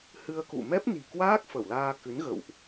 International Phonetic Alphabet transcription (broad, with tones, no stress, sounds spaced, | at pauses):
h ɨ˧ ə̯ k ṵ˧˨ m ɛ˦˥ p̚ n i̤˨˩ k w aː˦˥ k̚ f ə˧˩ w l aː˧ k ɨ˨˦ n ɣ ə̰˧˨ w ʔ